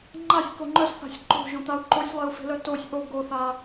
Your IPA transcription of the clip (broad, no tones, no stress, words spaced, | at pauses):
ŋ͡ǃasʲko ŋ͡ǃœsθa̤sʲ ǃo̤ʒõt̪au̯ ǃosʲlˠeu̯fe̤lœ tosʲ ʔo ɡoθa